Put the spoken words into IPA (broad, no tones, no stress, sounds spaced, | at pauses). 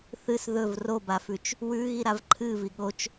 θ ɨ s ð ɵ v r o b a f ʉ t͡ʃ | w ʉ ɣ i ɾ a v ǃʰ ɨ v i ɠ o t͡ʃ